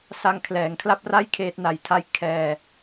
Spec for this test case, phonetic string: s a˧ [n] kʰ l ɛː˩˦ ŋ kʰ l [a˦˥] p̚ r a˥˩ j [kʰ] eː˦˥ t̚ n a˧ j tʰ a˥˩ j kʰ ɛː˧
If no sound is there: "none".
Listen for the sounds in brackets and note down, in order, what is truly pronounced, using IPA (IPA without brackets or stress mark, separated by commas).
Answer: ŋ, a˥˩, kʰ